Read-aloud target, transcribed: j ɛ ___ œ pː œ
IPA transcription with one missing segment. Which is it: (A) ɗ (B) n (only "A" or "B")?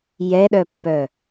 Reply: A